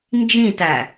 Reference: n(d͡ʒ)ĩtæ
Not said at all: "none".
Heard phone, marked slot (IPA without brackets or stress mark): d͡ʒ